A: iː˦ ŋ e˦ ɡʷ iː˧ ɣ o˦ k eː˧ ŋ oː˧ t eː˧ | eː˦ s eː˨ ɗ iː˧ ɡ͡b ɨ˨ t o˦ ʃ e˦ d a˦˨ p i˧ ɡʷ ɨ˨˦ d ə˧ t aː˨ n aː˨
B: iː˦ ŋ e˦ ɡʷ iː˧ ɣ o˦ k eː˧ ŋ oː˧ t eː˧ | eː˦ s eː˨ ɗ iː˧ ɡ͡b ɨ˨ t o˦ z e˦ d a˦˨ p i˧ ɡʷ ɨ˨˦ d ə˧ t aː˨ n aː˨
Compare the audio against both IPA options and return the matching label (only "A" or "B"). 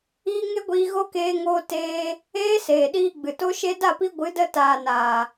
A